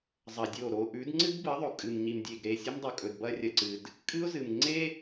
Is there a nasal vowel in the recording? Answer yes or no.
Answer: no